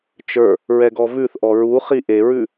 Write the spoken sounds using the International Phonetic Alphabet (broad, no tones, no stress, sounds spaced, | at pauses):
t͡ʃ ə˞ | ɹ ɛ ɡ ɔ v ʉ θ ʔ ɔ ɹ u χ i ʔ e ɹ ʉ